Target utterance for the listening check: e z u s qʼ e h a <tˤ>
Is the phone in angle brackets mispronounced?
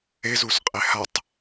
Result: no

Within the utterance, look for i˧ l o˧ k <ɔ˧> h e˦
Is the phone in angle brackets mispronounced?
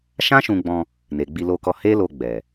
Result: no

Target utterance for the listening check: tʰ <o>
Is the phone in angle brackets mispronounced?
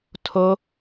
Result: no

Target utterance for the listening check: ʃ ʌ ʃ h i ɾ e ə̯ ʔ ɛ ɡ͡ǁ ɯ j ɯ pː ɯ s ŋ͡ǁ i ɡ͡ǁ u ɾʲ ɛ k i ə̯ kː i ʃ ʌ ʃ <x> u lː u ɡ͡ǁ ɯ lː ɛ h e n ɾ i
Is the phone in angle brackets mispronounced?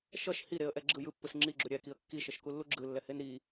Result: yes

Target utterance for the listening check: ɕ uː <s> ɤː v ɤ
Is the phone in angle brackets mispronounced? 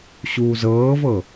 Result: yes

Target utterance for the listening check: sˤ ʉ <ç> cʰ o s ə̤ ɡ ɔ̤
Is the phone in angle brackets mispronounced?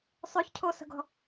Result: no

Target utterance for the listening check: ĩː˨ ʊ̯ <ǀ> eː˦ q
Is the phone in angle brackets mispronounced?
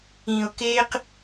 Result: yes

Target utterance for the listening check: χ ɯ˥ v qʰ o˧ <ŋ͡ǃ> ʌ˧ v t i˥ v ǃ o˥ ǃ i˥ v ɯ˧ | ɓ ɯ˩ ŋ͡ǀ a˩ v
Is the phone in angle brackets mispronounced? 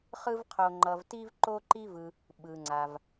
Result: no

